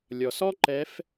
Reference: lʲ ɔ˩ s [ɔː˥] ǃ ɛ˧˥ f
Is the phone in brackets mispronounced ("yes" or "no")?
yes